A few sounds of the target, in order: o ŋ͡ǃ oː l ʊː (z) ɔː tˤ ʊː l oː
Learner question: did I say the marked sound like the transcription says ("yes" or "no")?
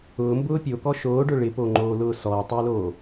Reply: no